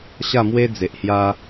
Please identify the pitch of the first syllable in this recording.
falling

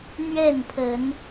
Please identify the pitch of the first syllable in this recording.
falling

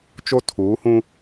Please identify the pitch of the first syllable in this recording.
high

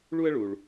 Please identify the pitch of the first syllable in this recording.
high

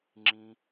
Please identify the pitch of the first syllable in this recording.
high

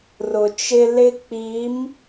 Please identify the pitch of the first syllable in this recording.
low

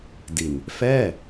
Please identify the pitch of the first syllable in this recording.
low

